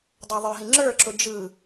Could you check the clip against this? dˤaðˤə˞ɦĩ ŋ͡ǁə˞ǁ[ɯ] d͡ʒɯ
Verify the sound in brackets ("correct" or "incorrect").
incorrect